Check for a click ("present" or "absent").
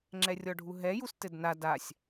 present